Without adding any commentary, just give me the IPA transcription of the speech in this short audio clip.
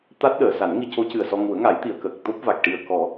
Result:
t̪a˦˥t̚ɗəː˨˩˨ sa˨˩˦nŋi˧co˧˥cɨ˨˩ə̯ sɔ˧ ŋu˨˩˦ə̯ŋa˨˩˦jt̪i˨˩˨ə̯ kə˨˩k̚t̪o˦˥p̚va˨˩k̚ ʈi˨˩ə̯kɔ˨˩˦

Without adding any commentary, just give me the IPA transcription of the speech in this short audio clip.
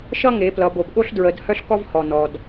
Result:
ʃʌ˦ŋe˩˧plʌ˩˧ bo˩bɠo˦ɬ dɹə˩˧d hœ˦ɬkɔ˦vhɔ˩ nɔ˩d

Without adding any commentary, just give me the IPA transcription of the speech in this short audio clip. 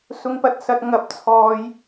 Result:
sʊ˨ŋpɐ˨t̚sɐ˨t̚ ŋɐ˨p̚t͡sʰɔː˨j

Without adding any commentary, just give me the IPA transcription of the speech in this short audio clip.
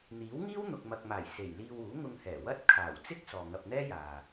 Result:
n̪iː˨˥wŋiː˥w n̪ʊ˨k̚ mɐ˨k̚maː˨˩j se˨˩j liː˧wuː˨˥ŋʊ˧ŋhɛː˨˩ wɐ˥t̚kʰaː˨˩w t͡sɪ˥k̚ sɔː˨ŋɐ˧p̚n̪ɛː˥jaː˨

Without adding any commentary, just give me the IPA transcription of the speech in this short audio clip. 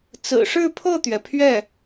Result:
t͡sɹ̩˨˩ʂɻ̩˥˧pʰɤ˥˩t̪ɥɛ˩ pʰɥɛ˥˩

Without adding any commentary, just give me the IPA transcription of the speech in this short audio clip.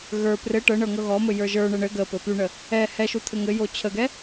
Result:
ɣə˞ prɘ ʈɤɳɤ ŋɤɣɔmɘ jə˞ʒə˞ɳə ɳɘ ɡə pɘpyɳə | ɛ hɛʃu t̪ʰɘŋɘjo t͡ɕʰəɡɛ

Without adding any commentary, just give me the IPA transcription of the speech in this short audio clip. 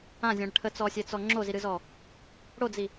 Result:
ãzʲɔ̃ɽə ʈʰət͡sɔsʲɛt͡sɔ ŋ͡ǁoziɾɨzɔ | ɽod͡zi

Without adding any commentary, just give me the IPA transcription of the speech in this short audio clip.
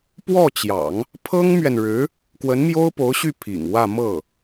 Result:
pwɔ˥˩t͡ɕjɑ̰˨˩˦ŋ | pʰɤ˥ŋmɥɛ˨nɻɻ̩˧˥ | kwə˧˥nmjo˥ʊ̯po˧˥ʊ̯ɕy˥˩ pʰḭ˨˩ŋwä˥˧ mɤ˥˩

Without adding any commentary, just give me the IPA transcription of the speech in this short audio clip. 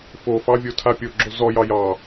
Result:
fofɑvʲotʰa pʲoɡ͡ǁo zɔjɑ jɑ

